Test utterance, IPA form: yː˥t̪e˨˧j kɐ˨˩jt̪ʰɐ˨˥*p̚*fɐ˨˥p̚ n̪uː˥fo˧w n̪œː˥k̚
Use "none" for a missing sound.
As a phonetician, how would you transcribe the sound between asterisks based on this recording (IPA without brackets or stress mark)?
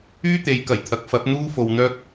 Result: k̚